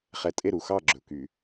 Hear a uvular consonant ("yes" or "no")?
yes